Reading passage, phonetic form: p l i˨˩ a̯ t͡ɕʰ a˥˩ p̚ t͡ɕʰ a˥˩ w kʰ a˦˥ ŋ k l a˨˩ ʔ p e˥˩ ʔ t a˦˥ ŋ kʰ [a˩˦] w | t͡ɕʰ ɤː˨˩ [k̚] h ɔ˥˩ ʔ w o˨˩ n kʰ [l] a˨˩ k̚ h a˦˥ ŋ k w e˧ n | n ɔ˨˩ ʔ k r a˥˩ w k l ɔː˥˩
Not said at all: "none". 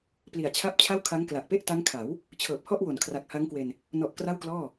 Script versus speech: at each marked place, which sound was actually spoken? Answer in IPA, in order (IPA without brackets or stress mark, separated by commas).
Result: a˩˦, p̚, r